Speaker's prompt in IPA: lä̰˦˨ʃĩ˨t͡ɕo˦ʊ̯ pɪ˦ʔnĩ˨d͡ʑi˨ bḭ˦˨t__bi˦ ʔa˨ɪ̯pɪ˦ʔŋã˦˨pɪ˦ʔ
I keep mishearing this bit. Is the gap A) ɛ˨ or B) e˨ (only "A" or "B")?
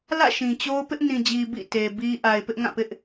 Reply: B